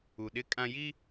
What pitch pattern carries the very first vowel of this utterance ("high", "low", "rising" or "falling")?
low